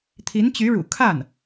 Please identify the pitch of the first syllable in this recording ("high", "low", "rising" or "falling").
rising